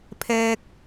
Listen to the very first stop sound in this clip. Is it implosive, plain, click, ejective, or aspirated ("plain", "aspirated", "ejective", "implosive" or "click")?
aspirated